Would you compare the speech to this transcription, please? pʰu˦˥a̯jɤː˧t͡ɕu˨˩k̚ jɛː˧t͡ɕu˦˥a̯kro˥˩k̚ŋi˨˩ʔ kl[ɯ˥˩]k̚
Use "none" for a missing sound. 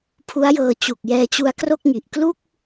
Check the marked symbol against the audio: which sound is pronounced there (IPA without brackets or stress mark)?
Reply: u˥˩